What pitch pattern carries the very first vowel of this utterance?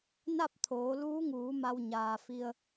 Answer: falling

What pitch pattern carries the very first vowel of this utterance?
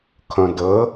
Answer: low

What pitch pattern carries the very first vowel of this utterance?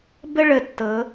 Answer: high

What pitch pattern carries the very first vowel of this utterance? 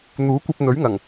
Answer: rising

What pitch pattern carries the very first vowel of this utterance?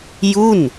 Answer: falling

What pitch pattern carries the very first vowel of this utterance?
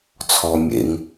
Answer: low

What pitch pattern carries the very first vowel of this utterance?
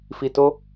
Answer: low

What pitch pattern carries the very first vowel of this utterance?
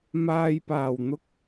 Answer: low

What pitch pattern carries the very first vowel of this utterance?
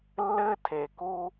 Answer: high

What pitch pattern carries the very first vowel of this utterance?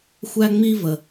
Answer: high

